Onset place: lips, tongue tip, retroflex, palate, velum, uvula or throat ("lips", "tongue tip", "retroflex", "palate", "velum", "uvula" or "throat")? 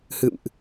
throat